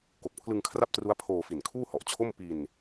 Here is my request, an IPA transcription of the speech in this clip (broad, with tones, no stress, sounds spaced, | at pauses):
k o˨˩ k̚ pʰ l ɯ˧ ŋ kʰ r a˥˩ p̚ t r u˦˥ a̯ pʰ oː˧ f i˨˩ n kʰ uː˥˩ h ɔ˨˩ ʔ t͡ɕʰ o˥˩ m p i˧ n